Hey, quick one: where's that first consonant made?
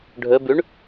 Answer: retroflex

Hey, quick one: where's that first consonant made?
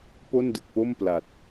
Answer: lips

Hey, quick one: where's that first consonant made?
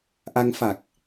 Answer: throat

